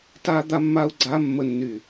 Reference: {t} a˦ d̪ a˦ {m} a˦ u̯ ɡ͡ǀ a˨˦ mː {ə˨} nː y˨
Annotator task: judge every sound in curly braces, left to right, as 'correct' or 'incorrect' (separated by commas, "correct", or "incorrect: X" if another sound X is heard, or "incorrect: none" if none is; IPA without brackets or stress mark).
correct, incorrect: mː, correct